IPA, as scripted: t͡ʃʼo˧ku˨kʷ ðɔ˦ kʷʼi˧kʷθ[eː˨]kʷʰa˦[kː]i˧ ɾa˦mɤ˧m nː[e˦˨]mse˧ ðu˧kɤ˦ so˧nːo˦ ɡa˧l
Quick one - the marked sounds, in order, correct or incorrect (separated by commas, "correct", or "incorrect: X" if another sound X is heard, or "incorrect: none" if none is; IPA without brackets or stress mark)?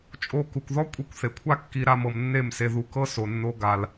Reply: incorrect: e˨, correct, correct